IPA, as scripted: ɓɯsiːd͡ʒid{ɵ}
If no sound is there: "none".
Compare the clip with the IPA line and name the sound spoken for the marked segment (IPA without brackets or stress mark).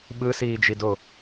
o